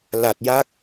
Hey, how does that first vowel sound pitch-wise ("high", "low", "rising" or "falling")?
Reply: low